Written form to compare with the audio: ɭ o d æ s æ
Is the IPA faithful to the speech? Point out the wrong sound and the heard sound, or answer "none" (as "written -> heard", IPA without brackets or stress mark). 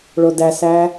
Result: none